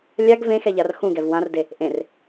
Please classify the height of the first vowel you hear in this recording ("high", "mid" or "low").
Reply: low